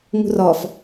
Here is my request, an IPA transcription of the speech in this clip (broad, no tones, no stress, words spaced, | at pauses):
ŋṳrɔf